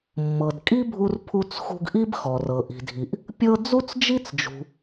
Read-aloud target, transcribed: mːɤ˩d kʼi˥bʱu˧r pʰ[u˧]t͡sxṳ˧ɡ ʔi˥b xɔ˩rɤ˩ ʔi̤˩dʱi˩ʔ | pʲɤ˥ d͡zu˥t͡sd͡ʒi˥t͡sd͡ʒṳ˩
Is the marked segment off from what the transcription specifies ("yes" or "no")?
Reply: no